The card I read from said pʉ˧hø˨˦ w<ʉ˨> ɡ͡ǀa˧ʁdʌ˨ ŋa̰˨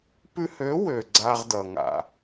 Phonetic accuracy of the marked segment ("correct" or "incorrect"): incorrect